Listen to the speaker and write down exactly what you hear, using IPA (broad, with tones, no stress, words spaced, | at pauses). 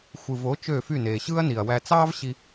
xʷɯ˨vo˨˦ t͡ʃø˦˨fy˦˨ neː˨ɕɯː˦ɐ̯ni˨ɐ̯wæ˧ t͡sɑː˦vɕi˧